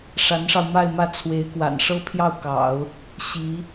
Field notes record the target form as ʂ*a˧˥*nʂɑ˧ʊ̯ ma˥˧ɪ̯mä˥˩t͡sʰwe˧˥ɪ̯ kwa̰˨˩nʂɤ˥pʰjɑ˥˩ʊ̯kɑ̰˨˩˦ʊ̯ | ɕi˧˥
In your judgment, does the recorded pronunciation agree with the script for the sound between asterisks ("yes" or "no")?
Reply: yes